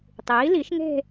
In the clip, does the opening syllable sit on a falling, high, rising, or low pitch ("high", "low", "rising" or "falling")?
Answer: rising